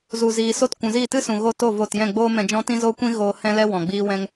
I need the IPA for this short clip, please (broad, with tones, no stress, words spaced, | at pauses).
zu˨ziː˨so˧t kʷũ˨ziː˦˨tɨ˦sũ˨ ɣo˧to˦˨ vo˦˨t jɛ̃˦˨ɡ͡boː˦mɛ̃˧d͡ʒɔ̃˦ tĩ˦zoː˦kʷĩ˦ ɣoː˧hɛ̃˦lɛ˦ wɔ̃˨ɡ͡biː˦wɛ̃˦ŋ